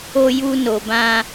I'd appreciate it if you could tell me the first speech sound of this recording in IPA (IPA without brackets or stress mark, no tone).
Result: o